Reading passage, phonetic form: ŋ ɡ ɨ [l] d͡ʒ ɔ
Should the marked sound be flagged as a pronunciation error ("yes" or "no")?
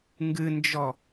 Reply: yes